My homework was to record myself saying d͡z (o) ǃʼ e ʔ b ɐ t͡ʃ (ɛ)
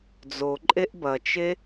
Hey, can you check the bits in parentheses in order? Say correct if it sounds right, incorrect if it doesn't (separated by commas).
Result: correct, incorrect